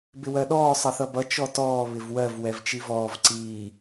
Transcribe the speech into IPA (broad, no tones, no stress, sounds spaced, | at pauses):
b ɪ w ɜ ɗ ɔː sˤ ʌ θ ʌ b ʌ t͡ʃ ɔ t ɔː β ɪ v w ɜ v w ɛ v t͡ʃ i v ɔː v ǀ iː